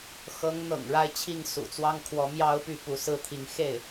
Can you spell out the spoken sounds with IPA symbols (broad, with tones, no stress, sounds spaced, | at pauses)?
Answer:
x ɤ˧˥ ŋ n̪ ɤ̰˨˩ ŋ ɻ a˥˧ ɪ̯ t͡ɕʰ i˥˩ ŋ s ṵ˨˩ t͡s w ɑ˥ ŋ kʰ w ɔ˧˥ m j ɑ˥ ʊ̯ p y˥˩ p u˧˥ s ɹ̩˥ t̪ʰ i˧˥ ŋ x e˥˩ ɪ̯